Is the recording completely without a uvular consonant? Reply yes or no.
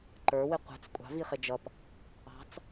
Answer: no